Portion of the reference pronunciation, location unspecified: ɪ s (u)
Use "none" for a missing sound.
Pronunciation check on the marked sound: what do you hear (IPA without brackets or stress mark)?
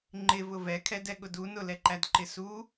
u